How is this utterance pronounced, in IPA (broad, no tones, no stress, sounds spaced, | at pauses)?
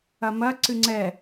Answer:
ɐ m ɐ ǀ ɨ ŋ͡ǀ ɛ